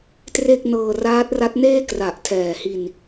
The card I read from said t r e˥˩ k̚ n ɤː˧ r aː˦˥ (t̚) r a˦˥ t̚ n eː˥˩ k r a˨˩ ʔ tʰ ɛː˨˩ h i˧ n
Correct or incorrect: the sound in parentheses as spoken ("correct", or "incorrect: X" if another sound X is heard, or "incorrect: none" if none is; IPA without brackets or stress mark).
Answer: correct